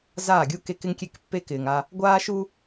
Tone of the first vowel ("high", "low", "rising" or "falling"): falling